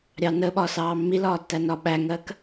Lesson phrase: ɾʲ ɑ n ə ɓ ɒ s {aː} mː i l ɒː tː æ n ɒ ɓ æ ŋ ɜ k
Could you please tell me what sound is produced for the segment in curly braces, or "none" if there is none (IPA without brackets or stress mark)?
ɑː